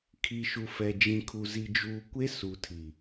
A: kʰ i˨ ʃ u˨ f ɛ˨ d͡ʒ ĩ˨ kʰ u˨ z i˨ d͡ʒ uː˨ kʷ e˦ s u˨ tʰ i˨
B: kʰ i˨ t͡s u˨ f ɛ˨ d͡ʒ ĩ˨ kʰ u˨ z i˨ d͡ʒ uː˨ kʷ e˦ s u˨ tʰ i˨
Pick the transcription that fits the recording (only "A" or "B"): A